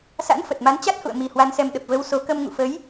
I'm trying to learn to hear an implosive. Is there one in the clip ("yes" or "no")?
yes